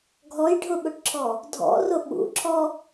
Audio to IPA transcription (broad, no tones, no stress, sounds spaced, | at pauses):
ɡʱ ɔ j ɖʱ ʊ ɓ ʊ ʈ ǁʰ ɔ | dʱ ɔ̰ r ʊ ɓ ṵ ǁʰ ɔ